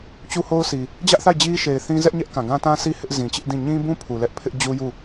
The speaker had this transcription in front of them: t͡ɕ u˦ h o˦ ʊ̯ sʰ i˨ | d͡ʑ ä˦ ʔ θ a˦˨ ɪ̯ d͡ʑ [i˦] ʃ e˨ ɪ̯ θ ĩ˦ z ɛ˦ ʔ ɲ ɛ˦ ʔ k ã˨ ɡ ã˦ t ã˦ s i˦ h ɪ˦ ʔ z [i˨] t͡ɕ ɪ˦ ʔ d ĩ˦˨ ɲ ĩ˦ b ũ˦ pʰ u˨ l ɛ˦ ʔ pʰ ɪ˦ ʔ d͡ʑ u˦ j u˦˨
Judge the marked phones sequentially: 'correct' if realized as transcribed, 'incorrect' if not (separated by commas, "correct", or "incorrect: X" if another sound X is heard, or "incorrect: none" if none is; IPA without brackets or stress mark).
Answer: correct, incorrect: ĩ˨